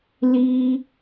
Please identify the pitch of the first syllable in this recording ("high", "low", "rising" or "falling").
high